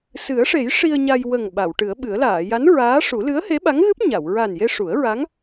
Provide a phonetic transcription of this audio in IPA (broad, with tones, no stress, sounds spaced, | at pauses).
s ɨ˨˩˦ ə̯ ʂ e˨˩˦ j ʂ i˧ ə̯ ɲ a˧ j w ə˨˩ ŋ ɓ a˨˩˨ w ʈ ɨ˨˩˦ ə̯ ɓ ɨ˨˩˦ ə̯ l aː˨˩˨ j a˧˥ n ɹ aː˧˥ ʂ u˨˩˦ l ɨ˧˥ ə̯ h e˧˥ ɓ a˧˥ ŋ ɣ ɨ˦˥ p̚ ɲ a˨˩˨ w ɹ a˨˩ n j e˧ ʂ u˨˩˦ ə̯ ɹ a˧˥ ŋ